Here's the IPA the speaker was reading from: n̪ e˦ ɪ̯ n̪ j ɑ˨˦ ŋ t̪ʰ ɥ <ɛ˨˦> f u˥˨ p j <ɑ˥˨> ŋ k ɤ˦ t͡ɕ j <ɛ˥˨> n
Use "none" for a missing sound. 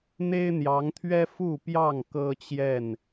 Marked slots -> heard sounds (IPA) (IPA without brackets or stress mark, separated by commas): ɛ˦, ɑ˥˨, ɛ˥˨